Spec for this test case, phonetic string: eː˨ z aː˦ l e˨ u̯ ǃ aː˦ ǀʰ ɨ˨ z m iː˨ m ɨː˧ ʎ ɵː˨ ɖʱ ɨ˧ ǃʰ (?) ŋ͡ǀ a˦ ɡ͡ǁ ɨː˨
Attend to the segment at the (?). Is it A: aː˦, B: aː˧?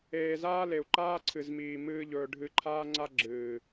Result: A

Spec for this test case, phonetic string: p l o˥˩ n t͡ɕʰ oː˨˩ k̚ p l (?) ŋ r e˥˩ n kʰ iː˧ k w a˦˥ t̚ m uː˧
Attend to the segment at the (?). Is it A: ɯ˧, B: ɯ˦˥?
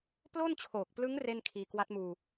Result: B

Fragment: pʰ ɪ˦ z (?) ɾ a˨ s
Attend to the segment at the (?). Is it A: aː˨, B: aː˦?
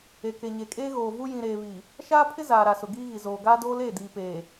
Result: A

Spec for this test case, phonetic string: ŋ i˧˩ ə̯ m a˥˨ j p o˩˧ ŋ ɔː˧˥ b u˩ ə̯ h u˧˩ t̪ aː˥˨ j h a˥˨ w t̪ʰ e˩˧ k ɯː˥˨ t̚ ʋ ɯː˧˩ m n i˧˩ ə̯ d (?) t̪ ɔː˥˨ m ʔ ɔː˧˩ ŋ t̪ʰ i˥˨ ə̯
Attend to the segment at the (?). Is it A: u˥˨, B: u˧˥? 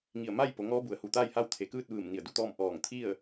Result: A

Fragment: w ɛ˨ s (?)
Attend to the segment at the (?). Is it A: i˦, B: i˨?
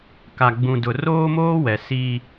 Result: A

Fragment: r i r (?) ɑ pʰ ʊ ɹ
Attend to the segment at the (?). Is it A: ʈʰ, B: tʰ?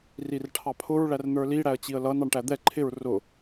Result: A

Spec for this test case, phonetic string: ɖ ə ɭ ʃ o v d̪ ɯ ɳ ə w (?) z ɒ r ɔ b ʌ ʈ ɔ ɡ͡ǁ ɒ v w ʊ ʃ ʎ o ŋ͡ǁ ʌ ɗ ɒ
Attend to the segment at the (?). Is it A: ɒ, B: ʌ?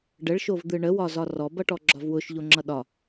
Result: A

